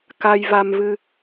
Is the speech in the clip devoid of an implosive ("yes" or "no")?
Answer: yes